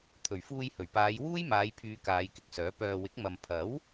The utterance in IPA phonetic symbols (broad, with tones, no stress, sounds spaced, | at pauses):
t̪ʰ ɵ˨˩ ɥ f uː˧ j h ɵ˨˩ ɥ p aː˨˧ j w uː˥ j m aː˨˧ j pʰ yː˨˧ k aː˨˧ j k ɪ˨ k̚ s œː˨˥ p œː˧ w ɪ˨˥ k̚ m ɐ˨ m pʰ ɐ˨˥ w